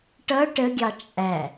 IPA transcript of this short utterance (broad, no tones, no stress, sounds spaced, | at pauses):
ʈ ʌ ʈ ə ɡʲ ɑ t͡ʃʼ æ